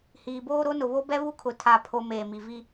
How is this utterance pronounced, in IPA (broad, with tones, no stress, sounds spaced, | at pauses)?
h iː˨ b oː˦ ɾ o˦ n ʊ˨ β o˦ b ɛ˦ β u˦ kʰ ʊ˨ tʰ a˦ pʰ o˦ m eː˨ m i˨ v i˦